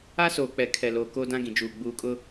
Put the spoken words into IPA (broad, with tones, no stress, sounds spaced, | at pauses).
a˦ s oː˨ k͡p ɛ˨ kʰ ɛ˨ l oː˨ k oː˦ d ã˦ ɡ ĩ˨ d͡ʒ uː˨ ɡ͡b uː˨ kʼ ʊ˦